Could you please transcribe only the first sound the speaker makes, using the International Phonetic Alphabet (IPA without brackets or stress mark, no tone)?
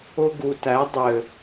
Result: ʊ